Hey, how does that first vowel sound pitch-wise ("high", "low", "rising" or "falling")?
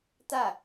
falling